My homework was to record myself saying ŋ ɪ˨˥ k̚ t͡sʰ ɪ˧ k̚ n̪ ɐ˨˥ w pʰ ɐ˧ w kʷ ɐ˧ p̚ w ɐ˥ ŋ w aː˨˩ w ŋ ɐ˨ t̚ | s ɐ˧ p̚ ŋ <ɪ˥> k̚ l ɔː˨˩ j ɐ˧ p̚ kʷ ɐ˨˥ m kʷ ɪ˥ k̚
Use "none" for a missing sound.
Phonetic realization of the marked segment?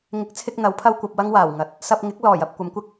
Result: ɪ˨˥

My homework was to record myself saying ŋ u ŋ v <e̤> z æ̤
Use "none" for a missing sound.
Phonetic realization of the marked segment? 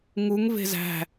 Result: e̤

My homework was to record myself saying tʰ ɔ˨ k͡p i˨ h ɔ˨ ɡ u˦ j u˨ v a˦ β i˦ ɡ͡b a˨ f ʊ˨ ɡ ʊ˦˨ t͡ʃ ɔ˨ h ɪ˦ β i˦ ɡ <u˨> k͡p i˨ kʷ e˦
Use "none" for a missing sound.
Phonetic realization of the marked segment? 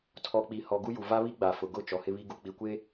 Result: u˨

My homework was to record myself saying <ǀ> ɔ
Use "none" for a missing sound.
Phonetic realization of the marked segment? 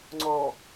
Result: ŋ͡ǀ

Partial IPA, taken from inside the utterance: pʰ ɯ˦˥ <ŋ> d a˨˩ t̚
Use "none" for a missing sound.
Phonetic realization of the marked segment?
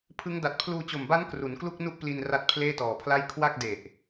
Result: ŋ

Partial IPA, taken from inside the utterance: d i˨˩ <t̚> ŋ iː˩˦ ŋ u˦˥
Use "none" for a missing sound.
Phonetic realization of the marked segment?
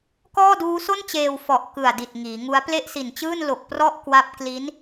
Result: t̚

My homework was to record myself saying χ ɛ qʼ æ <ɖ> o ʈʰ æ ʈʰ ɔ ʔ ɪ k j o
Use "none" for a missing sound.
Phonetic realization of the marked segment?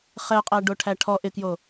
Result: ɖ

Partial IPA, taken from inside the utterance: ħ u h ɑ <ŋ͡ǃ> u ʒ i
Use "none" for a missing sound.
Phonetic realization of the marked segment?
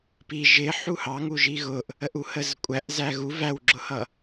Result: ŋ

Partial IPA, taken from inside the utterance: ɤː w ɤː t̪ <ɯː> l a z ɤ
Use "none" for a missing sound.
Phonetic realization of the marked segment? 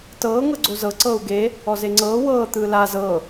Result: ɯː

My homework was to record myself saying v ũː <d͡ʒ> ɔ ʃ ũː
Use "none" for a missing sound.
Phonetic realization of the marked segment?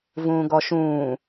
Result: ɡ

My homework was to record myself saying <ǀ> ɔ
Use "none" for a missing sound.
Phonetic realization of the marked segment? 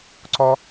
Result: ǀ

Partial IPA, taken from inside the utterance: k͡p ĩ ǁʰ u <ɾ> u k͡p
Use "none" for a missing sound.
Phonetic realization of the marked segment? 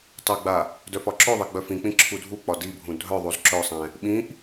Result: dʱ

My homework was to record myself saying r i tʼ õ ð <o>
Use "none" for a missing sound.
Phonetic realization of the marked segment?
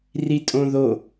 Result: o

